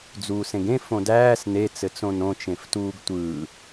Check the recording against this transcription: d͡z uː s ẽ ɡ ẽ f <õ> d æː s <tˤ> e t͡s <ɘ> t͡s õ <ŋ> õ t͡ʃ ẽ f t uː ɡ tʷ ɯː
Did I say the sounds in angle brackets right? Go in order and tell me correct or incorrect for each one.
correct, incorrect, correct, incorrect

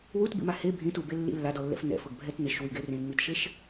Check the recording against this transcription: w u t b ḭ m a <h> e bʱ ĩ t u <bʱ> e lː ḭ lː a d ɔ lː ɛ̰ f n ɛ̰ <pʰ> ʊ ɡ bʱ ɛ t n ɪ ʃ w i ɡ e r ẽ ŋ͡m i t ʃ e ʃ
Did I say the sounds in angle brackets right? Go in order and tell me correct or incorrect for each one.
correct, incorrect, incorrect

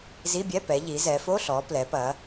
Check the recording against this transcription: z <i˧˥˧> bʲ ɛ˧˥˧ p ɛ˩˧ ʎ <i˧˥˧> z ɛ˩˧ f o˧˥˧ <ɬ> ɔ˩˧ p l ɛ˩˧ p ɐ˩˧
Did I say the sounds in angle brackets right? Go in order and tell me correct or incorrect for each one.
correct, incorrect, correct

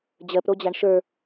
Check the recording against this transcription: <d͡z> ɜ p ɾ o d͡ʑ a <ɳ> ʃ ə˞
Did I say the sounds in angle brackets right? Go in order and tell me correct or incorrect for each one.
incorrect, correct

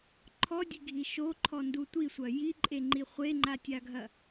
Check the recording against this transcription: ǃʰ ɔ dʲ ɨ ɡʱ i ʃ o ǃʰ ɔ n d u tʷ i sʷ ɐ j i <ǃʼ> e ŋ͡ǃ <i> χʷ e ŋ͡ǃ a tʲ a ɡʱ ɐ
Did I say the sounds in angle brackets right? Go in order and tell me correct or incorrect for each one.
correct, correct

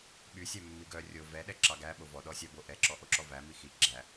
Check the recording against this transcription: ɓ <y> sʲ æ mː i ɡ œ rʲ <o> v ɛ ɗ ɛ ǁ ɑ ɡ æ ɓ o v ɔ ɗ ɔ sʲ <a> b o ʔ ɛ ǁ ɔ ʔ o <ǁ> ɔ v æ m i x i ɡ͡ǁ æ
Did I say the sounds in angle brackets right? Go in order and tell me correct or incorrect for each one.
correct, correct, incorrect, correct

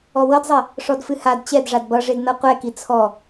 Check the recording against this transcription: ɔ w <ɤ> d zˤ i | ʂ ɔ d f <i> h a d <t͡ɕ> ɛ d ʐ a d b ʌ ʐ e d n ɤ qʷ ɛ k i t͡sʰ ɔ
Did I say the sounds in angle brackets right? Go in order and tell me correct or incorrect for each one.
correct, incorrect, correct

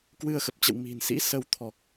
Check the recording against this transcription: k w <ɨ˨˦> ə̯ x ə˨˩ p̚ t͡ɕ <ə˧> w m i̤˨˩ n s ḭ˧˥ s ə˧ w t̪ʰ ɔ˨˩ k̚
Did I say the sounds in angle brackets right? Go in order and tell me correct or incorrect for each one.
incorrect, incorrect

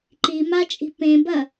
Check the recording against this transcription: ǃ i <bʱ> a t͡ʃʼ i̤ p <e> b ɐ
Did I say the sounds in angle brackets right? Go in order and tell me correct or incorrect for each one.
incorrect, incorrect

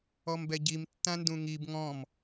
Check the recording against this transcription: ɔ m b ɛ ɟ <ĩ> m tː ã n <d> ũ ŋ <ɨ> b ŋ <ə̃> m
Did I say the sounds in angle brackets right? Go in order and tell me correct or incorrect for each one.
incorrect, correct, incorrect, incorrect

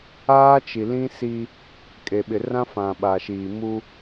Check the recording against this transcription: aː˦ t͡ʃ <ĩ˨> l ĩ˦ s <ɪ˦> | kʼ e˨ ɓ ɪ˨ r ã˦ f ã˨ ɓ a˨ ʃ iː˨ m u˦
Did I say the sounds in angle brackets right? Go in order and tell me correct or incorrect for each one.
incorrect, incorrect

